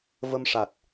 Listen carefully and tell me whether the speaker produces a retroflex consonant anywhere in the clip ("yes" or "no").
yes